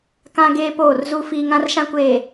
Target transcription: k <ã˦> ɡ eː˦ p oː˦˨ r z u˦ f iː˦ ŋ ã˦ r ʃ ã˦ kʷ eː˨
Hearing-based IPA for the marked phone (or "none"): ã˦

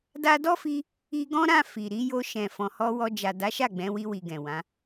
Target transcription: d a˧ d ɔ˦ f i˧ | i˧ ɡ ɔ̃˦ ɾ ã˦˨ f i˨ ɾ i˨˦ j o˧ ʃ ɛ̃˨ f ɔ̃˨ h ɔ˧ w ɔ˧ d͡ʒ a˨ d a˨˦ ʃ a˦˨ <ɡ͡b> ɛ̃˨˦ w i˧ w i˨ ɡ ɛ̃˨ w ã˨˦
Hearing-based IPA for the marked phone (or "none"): ɡ͡b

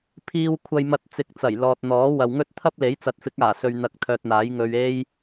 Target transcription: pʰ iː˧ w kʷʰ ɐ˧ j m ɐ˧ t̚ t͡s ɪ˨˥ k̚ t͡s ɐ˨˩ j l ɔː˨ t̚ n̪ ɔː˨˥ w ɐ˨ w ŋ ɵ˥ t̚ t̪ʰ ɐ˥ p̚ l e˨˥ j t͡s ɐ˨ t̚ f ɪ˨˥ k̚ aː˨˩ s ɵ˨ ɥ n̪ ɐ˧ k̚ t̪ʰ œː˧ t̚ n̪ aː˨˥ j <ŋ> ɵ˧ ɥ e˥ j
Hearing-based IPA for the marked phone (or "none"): ŋ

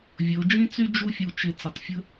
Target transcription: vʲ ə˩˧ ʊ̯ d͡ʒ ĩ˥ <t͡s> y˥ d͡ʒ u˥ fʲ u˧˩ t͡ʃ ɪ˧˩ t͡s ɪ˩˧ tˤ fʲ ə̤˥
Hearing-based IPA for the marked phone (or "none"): t͡s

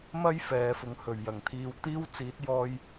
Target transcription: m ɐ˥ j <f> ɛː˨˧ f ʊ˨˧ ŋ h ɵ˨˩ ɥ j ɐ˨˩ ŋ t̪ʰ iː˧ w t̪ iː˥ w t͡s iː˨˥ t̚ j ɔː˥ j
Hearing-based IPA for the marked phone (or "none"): f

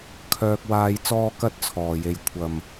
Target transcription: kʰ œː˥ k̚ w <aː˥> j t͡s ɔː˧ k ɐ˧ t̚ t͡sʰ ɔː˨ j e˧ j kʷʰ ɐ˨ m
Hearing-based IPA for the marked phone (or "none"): aː˥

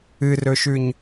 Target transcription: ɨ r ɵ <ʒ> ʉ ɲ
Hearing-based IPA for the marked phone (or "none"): ʃ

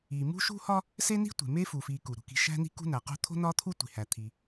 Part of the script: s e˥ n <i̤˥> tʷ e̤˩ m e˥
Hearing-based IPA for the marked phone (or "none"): i̤˥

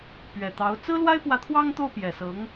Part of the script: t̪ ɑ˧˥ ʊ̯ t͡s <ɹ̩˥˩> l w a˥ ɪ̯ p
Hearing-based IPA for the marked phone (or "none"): ɹ̩˥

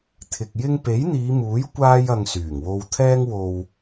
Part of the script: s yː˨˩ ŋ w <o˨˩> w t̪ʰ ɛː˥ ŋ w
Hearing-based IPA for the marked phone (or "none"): o˧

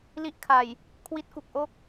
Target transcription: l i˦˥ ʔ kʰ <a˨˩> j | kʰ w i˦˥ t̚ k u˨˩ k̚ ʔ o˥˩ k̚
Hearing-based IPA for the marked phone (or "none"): a˨˩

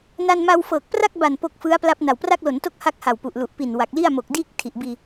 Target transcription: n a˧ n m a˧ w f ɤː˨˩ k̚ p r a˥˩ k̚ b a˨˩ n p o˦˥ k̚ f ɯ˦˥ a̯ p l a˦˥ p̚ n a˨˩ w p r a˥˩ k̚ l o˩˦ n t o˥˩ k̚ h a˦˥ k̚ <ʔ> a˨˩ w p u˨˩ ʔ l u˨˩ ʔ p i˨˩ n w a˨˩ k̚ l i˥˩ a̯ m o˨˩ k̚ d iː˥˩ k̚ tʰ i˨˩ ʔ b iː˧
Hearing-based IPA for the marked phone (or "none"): h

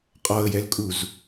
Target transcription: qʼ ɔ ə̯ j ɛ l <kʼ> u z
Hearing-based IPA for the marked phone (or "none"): kʼ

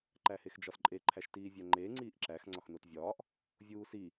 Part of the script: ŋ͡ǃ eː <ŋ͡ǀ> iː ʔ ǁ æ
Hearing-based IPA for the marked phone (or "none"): ŋ͡ǀ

